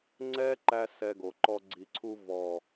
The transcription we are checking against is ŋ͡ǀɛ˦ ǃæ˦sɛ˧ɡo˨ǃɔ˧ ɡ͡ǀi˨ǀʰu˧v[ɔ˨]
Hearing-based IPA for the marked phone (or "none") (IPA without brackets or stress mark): ɔ˨